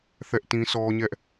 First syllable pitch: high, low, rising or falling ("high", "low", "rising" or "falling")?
high